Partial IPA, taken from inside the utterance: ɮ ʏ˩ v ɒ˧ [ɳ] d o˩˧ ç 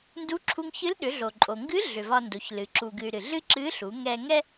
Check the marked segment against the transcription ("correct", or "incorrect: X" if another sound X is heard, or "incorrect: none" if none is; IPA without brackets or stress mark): incorrect: n